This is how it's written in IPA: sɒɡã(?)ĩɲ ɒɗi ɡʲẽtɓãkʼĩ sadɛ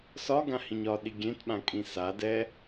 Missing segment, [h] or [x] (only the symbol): h